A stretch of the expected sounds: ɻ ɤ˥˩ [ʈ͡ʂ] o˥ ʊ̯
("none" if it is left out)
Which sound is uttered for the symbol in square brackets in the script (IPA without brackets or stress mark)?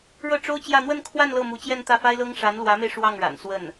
ʈ͡ʂ